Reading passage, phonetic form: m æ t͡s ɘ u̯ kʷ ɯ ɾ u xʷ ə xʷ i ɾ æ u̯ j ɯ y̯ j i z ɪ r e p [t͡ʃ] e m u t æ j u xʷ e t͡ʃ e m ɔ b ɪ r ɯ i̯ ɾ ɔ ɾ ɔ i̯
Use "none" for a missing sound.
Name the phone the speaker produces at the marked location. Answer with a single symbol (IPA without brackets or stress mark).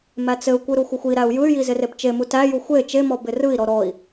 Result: t͡ʃ